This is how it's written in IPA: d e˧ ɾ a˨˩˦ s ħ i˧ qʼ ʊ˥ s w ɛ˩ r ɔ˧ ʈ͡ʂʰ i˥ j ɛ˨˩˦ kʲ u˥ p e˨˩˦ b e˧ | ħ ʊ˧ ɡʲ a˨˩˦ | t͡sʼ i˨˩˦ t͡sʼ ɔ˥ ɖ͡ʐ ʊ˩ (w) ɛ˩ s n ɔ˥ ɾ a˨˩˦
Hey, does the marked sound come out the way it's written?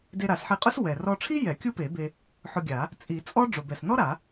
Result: no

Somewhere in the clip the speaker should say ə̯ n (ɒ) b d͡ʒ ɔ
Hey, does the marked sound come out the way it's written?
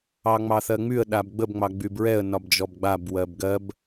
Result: yes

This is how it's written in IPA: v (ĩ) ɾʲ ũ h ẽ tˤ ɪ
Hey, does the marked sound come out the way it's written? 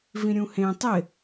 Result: yes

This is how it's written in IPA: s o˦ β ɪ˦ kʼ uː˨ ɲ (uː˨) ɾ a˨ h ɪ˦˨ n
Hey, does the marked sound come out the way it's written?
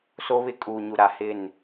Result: no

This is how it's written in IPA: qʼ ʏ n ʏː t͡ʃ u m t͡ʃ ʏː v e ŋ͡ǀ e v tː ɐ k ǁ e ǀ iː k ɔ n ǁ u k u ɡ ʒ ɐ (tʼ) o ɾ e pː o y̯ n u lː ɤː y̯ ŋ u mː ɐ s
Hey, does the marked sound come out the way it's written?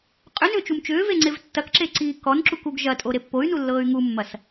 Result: yes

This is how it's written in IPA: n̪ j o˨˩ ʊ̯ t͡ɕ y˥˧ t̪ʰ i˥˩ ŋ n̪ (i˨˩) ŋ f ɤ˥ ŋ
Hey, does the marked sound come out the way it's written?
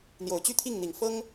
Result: yes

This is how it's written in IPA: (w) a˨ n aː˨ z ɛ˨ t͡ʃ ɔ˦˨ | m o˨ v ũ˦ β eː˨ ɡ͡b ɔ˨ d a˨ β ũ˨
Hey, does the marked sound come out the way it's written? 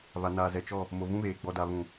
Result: no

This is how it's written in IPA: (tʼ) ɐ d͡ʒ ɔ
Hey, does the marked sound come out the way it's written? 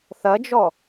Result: no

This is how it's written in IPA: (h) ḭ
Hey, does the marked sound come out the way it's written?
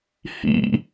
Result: yes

